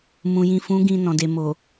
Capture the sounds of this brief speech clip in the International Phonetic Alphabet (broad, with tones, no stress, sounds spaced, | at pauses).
m ũ˨ j ĩ˨ f ũ˨˦ ɡ ĩ˧ n ɔ̃˨ d e˨ m o˨